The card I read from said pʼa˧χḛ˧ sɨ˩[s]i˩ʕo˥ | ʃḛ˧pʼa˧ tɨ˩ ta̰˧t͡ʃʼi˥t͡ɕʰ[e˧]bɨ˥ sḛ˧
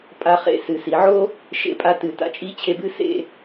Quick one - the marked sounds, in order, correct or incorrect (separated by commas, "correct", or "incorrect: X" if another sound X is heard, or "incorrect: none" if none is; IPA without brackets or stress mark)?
correct, correct